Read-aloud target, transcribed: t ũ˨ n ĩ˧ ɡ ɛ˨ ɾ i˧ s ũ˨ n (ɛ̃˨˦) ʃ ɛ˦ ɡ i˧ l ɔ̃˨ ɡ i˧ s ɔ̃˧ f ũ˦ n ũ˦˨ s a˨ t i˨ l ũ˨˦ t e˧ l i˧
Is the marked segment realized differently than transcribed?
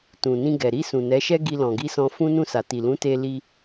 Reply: yes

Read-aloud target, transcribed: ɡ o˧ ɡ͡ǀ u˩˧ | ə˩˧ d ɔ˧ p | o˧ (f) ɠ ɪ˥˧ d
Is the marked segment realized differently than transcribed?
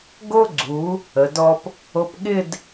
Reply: yes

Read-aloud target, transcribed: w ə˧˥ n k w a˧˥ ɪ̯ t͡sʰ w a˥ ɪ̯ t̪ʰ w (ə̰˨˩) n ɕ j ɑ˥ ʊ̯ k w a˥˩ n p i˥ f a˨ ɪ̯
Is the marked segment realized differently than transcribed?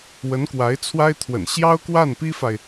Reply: no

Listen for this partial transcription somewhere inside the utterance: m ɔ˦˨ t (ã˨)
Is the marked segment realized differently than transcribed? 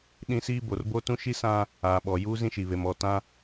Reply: yes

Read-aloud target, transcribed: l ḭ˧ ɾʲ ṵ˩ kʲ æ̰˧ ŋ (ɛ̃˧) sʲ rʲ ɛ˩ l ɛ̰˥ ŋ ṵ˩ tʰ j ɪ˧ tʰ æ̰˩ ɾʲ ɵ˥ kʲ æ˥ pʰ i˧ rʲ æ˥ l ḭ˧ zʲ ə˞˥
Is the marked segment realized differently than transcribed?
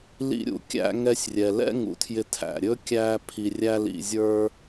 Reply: yes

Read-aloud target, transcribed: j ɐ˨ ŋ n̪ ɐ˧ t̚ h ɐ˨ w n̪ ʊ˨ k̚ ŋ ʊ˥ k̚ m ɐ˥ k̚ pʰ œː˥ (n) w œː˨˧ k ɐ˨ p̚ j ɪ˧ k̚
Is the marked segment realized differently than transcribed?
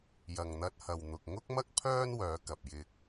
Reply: no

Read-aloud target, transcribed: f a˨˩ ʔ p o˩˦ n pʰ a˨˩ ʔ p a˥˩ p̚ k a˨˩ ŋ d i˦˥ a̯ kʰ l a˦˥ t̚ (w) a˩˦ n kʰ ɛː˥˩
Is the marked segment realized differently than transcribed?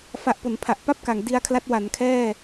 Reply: no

